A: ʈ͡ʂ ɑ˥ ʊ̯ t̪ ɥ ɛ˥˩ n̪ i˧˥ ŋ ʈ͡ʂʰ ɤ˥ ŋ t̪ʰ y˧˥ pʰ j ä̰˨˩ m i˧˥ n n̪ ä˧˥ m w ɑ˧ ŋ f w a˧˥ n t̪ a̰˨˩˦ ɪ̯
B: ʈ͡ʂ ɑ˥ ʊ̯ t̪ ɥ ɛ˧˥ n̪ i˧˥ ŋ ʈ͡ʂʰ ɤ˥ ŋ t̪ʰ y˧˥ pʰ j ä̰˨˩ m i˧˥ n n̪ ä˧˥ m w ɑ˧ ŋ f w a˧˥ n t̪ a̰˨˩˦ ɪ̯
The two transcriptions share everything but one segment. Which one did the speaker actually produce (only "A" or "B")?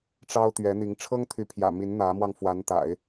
B